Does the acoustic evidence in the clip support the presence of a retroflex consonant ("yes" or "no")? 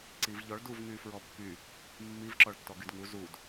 yes